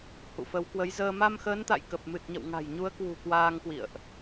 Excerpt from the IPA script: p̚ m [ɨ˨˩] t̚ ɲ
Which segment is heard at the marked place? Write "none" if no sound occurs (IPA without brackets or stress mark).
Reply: ɨ˨˩